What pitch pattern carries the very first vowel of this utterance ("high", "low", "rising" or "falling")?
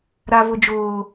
high